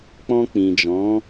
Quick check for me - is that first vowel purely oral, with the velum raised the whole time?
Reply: no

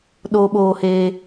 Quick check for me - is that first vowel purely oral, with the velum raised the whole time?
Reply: yes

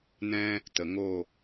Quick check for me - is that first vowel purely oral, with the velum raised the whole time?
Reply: no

